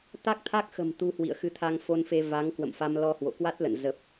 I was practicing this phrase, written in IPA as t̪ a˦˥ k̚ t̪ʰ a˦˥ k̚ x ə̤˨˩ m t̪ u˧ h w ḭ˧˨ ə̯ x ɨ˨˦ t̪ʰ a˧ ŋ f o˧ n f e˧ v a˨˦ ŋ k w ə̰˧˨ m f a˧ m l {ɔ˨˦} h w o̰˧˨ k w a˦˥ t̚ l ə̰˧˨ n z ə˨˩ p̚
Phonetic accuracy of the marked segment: incorrect: ɔ˧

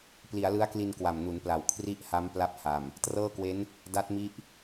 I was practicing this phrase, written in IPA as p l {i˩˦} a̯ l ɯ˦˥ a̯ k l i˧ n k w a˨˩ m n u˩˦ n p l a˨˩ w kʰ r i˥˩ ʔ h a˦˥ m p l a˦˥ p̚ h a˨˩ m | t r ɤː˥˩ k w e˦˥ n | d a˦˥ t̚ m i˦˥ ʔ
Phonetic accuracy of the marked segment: correct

